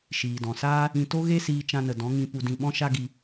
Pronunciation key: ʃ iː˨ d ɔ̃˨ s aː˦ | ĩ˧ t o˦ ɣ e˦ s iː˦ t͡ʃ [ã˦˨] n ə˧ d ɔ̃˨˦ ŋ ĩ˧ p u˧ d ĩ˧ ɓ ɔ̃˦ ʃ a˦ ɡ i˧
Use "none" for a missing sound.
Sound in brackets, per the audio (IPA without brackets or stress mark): ã˦